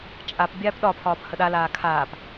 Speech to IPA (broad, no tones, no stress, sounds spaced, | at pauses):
t͡ʃʼ a p bʲ aː p ɗ ɒ pʰ ɒː p h ə ɗ a l aː kʰ aː p